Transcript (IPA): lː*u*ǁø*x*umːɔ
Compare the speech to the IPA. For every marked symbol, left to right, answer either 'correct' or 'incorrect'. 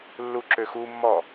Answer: correct, correct

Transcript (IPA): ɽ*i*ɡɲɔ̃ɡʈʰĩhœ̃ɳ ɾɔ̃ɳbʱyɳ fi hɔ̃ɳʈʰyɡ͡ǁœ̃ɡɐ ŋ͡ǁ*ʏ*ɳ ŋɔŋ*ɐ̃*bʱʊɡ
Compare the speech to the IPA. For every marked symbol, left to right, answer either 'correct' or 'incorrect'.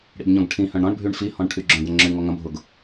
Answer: incorrect, correct, correct

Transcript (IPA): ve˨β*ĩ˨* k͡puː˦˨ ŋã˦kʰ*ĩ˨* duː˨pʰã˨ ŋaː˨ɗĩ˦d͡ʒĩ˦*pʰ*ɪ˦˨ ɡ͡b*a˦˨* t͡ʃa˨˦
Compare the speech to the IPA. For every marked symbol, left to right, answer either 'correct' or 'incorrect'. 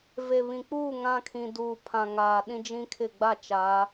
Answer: correct, correct, incorrect, correct

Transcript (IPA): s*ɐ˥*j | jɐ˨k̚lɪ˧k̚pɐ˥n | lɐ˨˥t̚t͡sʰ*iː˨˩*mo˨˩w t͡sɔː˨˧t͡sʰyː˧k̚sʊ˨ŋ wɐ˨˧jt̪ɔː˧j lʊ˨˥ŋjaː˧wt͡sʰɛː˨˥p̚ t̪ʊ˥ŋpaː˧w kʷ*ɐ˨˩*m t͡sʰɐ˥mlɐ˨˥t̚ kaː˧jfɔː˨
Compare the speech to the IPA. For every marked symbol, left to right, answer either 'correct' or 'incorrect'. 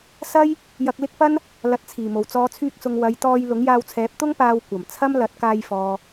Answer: correct, correct, correct

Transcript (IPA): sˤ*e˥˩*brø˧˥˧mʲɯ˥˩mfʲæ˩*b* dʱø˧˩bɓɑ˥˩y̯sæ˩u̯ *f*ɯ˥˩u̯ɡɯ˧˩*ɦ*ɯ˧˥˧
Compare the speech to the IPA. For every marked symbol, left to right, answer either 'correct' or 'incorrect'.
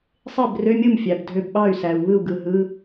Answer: correct, correct, incorrect, correct

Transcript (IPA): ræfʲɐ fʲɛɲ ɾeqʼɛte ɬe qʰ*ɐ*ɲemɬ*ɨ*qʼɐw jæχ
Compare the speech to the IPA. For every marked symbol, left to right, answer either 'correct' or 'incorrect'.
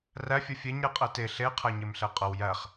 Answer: incorrect, incorrect

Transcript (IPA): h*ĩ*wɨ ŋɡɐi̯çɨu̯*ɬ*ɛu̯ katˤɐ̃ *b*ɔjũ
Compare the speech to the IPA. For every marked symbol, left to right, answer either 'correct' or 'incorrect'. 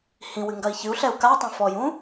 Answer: correct, correct, incorrect

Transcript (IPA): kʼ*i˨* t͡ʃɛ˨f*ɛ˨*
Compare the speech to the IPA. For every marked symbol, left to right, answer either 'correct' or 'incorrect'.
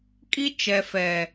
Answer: incorrect, correct

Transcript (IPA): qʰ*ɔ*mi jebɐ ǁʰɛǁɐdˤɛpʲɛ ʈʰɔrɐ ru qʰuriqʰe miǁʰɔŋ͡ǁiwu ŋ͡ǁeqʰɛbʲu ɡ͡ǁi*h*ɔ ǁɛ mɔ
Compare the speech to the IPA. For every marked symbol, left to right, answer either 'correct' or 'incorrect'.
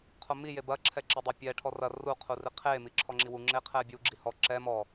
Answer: incorrect, correct

